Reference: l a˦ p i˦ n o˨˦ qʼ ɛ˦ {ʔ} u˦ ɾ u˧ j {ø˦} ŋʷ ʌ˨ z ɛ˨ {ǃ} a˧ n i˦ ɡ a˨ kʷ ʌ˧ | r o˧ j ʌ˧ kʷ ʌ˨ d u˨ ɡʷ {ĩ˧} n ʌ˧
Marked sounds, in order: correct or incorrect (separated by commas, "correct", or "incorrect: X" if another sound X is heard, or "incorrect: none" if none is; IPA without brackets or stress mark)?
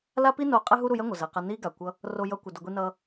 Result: incorrect: ɦ, incorrect: ɛ˦, incorrect: q, incorrect: i˧